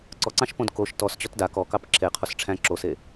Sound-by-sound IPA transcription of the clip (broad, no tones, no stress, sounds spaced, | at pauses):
ǀ ɔ ǀ ɑ̃ ʃ p õ d k o ʃ t ɔ s t͡ɕ ɔ t d a k ɔ k ɑ p ǁʰ e qʰ o s ʈ͡ʂʰ æ̃ ǁ o s e